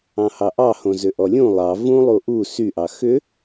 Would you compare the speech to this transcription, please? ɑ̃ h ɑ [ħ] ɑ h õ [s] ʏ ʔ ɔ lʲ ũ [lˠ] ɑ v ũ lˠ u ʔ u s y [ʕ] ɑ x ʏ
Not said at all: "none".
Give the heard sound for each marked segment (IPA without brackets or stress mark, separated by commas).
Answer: ʔ, z, lˠ, ʔ